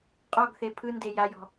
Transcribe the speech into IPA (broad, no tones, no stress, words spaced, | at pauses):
qʼɔɡθe pʰɯnde jajɔ̤